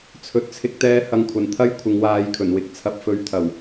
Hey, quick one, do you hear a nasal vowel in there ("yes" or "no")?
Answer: no